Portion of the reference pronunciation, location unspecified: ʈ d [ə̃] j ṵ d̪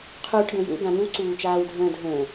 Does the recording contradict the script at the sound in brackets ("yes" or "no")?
no